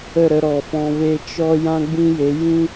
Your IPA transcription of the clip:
ə˦˨ ɾ ə˧ ɾ ɔ˨ f ɔ̃˧ v e˦ t͡ʃ ɔ˦ j ã˦ ɡ͡b ĩ˦ j e˨˦ j ĩ˦

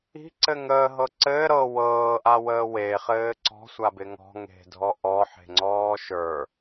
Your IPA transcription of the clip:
i̤ ǀ ɘ ŋ əː ɦ ɤ ǀ ɘː ɾ ɤ w ɤː ʔ a w əː w e χ ɘː ǀ ɔ̤ sʷ a b ɪ ŋ ɔ̤ ŋ e̤ dʱ ɔ ʔ ɔ ħ e̤ ŋ͡ǀ ɔː ʃ ə˞

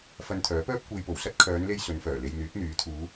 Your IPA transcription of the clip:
f ɐ˧ n t̪ʰ œː˨˥ p œː˥ p̚ kʷ e˧ j p o˨˩ w s ɐ˥ t̚ kʰ œː˨˧ n l e˧ j s ɵ˨˧ n f œː˨˩ l e˧ j n̪ yː˨˥ t̚ n̪ yː˨˥ t̪ʰ uː˨˧

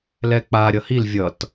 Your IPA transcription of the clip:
l ɛ k͡p a ɾʲ ʌ h i l vʲ ʌ t

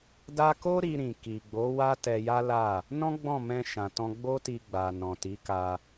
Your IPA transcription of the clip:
d a˦ k o˦ ɾ i˧ ɾ ĩ˨ k i˨ ɡ͡b o˨˦ w a˦ t ɛ˧ j a˦ l a˦˨ | n ɔ̃˦ ɡ͡b ɔ̃˦˨ m ɛ̃˧ ʃ ã˨ t ɔ̃˧ ɡ͡b o˦ t i˧ ɡ͡b a˨ n ɔ̃˨ t i˨˦ k a˧

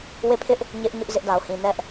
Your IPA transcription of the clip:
w e˦˨ pʰ ɪ˦ ʔ | ɲ ɪ˦ ʔ ɲ ʊ˦ ʔ z ɪ˦ ʔ d a˨ ʊ̯ h ĩ˨ n ɛ˦ ʔ

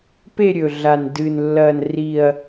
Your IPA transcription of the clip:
p e˥˧ ɾʲ ɵ˨˩ ɮ a˨˩ n d ɨ˨˩ n lː ɐ˥˧ n r i˥˧ ɐ̯

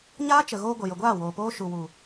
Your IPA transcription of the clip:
ɲ aː˦ t͡ʃ ə˨ ɣ oː˧ ɡʷ ə˨ j ə˨ ɡʷ aː˦˨ w oː˨ p oː˦ ʃ u˨ w u˨

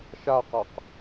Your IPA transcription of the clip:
ʃ a q a q

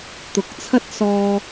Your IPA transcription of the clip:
t̪ ʊ˨ k̚ t͡sʰ ɐ˥ t̚ s ɔː˧

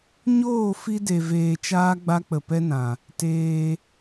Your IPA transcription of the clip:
ɲ oː˦˨ f i˦ d e˨ v eː˨ t͡ʃ aː˦ ɡ͡b a˦ k͡p ə˨ p ɛ˦ n ã˨ | t eː˧

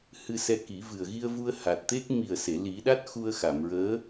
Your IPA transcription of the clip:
h ɨ˧ s ɛ˧ k i˨˩˦ v ɨ˨˩ ə̯ ɣ i˧ ə̯ v u˧ ə̯ h a˨˩ t̚ t̪ e˦˥ k̚ m i˨˩ ə̯ s e˨˩˨ l i˨˩˦ ɗ a˦˥ t̚ x u˧ ə̯ x a˨˩˨ m ɹ əː˧˥

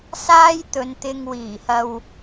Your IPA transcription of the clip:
s aː˥ j t̪ ɵ˨˧ n t̪ ɪ˧ ŋ w iː˨˩ h ɐ˨ w

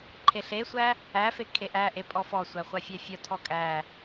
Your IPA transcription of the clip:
ǃʰ e ɬ e sʷ æ | æ f e kʰ e ʔ æ ʔ e pʼ ɔ f ɔ sʷ æ χʷ a fʲ æ fʲ ɔ tʰ ɔ kʼ æ

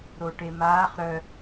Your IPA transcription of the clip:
ɾ o ʈ e m aː χ ɾ œ

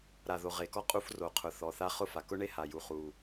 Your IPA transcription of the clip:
ɾ a˨˩ ð o˨˩ ʁ e˨˩ k ɔ˥ qʼ u˥ f r o˨˩ qʰ ʊ˨˩ θ ɔ˨˩ θ a˥˧ χ ʊ˥ f a˨˩ k ʊ˥ ɳ e˥ h a˨˩ j u˨˩ χ u˨˩

